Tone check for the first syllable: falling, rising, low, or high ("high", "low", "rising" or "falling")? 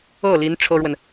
falling